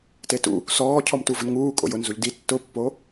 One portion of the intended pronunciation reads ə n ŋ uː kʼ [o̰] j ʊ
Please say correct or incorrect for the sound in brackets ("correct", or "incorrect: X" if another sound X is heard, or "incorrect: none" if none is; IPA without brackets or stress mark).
correct